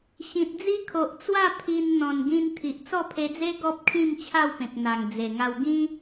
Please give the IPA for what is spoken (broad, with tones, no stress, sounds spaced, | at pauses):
ɕ ĩ˨ t̚ d͡z i˦ kʰ o˨ ʔ t͡s w a˥˧ pʰ i˧ n n̪ ɔ̃˨˩ n ɡ ĩ˧ n t̪ʰ i˨ ʔ t͡s ɔ˥˧ pʰ e˧ d͡z e˦ ɡ ɔ˦ p̚ kʰ ĩ˥˧ m t͡ɕʰ a˥˧ w p ẽ˨ k̚ n̪ a˨˩ ŋ d͡z e˨˩ ŋ a˧ w ɡ ĩ˦